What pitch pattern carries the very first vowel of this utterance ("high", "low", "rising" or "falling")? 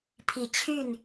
low